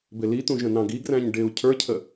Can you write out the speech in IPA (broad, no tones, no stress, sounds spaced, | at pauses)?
b ɪ l i t̪ ũ ʒ ə̃ n ɑ̃ ɡ i ɡ r æ̃ ɲ ɖ ɪː u̯ cʰ ə˞ cʰ ə